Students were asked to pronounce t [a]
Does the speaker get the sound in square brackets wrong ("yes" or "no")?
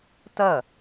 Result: yes